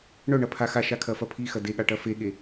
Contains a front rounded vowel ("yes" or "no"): yes